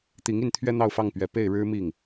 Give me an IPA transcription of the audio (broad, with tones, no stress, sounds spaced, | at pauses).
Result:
t̪ i˧˥ ŋ i˥˩ n t̪ʰ ɥ ɛ˥ n̪ ɑ˥˧ ʊ̯ f ɑ˥˩ ŋ p ɥ ɛ˨˩ p e˥˩ ɪ̯ ɻ ɻ̩˥ m i˥˩ ŋ